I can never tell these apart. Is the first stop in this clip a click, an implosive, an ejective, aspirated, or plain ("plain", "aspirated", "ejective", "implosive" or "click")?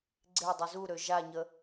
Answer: click